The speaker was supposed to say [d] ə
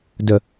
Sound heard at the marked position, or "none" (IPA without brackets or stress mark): d